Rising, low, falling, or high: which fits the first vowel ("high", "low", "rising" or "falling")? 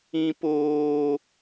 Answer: high